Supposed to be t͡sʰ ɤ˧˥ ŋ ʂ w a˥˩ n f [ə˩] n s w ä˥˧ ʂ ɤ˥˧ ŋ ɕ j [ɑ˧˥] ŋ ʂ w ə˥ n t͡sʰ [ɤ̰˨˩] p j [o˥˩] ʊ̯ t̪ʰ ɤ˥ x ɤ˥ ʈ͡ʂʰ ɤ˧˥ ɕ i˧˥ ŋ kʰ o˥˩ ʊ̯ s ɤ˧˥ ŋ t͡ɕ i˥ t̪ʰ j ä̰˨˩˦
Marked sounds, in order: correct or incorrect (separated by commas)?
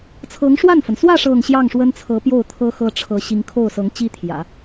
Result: correct, incorrect, incorrect, correct